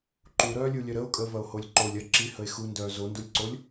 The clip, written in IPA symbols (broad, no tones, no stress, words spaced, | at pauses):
ǃuɾœːlʲulʲœ ɾəo̯ kʼəvɐo̯holʲ ǃolʲ ɐ ǁihəe̯ xundœː zondulʲǀolʲ